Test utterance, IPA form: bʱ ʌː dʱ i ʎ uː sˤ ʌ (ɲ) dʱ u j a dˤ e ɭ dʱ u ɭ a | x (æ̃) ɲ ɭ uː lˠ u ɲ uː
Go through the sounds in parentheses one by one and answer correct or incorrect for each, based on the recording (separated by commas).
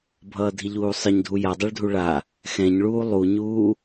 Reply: correct, incorrect